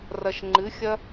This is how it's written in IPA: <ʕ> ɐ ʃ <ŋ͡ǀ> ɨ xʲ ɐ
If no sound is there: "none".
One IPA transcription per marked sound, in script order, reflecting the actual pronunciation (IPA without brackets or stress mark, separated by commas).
r, ŋ͡ǃ